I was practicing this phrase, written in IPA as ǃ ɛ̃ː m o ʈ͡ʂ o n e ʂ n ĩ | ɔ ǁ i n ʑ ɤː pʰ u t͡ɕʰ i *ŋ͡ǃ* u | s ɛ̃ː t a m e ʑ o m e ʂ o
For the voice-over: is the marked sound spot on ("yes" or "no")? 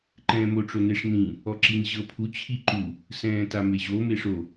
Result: no